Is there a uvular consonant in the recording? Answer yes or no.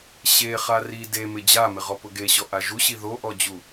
yes